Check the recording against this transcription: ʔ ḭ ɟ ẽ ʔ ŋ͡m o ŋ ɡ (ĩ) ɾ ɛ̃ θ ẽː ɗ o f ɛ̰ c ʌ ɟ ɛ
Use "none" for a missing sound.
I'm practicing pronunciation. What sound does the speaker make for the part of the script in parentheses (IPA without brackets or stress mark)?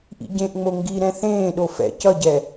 i